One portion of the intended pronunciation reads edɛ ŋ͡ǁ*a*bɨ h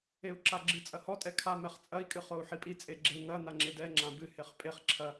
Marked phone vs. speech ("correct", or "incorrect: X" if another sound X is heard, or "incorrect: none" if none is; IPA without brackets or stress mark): incorrect: ã